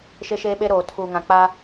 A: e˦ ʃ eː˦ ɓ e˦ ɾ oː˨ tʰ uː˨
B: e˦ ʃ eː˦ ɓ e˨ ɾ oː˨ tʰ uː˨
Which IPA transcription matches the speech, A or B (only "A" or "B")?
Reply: A